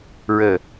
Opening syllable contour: low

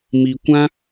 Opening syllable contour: low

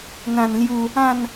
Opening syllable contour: low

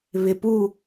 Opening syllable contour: low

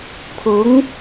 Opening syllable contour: rising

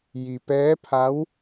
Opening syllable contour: low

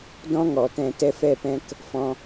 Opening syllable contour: high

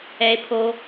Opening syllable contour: low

